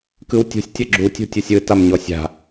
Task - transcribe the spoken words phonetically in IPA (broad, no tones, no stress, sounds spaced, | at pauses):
k ɯ w tʲ ṳ sʲ tʲ ʌ ɡ͡ǁ u tʲ ṳ tʲ u sʲ ɯ t a m ɲ ɔ sʲ a̤